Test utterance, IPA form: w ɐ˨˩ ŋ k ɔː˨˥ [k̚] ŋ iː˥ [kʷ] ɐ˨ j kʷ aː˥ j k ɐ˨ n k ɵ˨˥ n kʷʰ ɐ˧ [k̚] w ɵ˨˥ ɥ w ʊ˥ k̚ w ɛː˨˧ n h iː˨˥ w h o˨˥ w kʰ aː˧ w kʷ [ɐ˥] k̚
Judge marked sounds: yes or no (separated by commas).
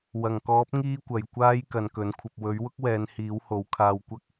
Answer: no, yes, no, yes